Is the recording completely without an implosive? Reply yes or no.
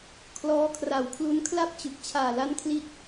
yes